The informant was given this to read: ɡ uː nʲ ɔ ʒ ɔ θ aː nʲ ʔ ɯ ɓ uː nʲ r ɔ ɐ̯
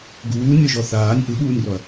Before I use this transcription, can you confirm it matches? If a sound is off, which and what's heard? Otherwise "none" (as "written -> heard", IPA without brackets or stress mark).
none